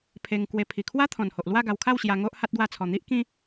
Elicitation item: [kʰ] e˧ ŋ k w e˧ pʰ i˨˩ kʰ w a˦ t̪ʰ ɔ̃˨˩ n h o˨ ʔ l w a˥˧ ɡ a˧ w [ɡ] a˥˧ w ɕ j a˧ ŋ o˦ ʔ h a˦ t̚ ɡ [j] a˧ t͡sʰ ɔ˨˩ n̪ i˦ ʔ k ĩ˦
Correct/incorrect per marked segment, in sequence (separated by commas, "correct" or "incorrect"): incorrect, incorrect, incorrect